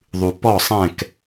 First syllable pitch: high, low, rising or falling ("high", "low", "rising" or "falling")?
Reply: low